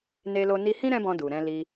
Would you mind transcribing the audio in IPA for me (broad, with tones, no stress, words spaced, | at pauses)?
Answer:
ne˦lo˦ ni˧hĩ˦ ɾɛ̃˦bɔ̃˧ du˨ɾɛ̃˧ li˧